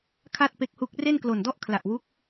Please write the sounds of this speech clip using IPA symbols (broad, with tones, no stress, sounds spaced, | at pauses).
kʰ a˥˩ t̚ p e˦˥ k̚ h u˦˥ k̚ r e˥˩ n k l o˨˩ n d ɔ˥˩ ʔ kʰ l a˨˩ ʔ w u˦˥ k̚